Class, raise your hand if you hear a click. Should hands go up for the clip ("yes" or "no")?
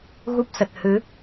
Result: no